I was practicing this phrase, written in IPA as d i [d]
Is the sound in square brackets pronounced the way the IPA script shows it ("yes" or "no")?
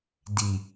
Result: no